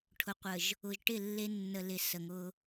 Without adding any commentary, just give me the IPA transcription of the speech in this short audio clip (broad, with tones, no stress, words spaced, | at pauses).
ʈʰʊ˨qʷə˨ʒ | ʊ˨ʒʈɪ˦˨ lːe˦ nːə˨lɪ˨ sə˨ŋʊ˦